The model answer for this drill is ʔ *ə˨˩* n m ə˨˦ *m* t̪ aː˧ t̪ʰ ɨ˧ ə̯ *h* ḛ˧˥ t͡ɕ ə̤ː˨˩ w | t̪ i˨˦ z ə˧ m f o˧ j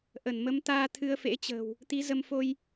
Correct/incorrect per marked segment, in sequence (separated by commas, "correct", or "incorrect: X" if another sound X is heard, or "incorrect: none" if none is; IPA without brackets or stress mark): incorrect: ə˧˩, correct, incorrect: f